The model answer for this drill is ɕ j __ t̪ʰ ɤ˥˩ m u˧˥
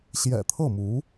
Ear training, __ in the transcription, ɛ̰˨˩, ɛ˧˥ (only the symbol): ɛ̰˨˩